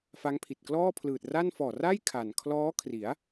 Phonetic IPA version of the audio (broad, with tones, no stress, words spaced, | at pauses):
fa˦˥ŋpʰi˨˩t̚ klɔː˥˩pʰlɯː˨˩t̚ra˥˩n fɔː˨˩ra˥˩j kʰa˨˩n kʰlɔː˦˥kʰri˩˦a̯